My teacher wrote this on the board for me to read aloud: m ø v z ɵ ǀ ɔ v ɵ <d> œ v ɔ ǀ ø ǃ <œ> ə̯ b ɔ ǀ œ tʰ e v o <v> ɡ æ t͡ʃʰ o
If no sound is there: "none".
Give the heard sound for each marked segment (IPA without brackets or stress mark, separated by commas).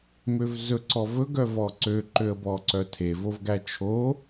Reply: ɡ, ø, v